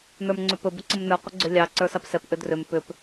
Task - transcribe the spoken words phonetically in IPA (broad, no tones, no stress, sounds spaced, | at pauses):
n ə˞ m ŋ͡ǀ ʏ p ɵ b ə ǀ ə m n ə˞ qʷ ə ɡ͡ǀ ʏ lʲ ɑ ǀ ə˞ s ɑ p s ɛ p ʔ ʏ d r ʏ m p ʏ p